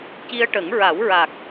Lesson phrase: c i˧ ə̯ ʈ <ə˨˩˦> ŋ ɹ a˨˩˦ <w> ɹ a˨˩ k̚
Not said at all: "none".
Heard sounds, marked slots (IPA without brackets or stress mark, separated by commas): ə˨˩˦, w